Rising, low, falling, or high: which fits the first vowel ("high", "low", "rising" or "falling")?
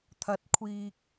rising